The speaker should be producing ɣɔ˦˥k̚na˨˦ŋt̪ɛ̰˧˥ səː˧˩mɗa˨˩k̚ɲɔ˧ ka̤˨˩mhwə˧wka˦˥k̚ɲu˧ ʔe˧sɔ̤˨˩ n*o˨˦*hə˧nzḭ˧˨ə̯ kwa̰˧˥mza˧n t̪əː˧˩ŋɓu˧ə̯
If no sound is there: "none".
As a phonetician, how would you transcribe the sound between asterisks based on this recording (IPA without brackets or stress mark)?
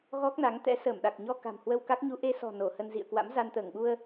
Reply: o˧˩